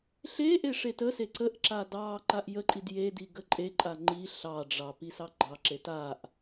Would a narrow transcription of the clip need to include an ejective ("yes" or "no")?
yes